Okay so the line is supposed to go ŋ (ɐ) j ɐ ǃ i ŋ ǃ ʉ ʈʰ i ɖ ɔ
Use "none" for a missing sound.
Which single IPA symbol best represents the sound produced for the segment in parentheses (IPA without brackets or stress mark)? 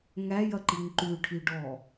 æ